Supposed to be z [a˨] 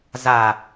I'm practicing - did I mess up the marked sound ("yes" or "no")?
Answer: no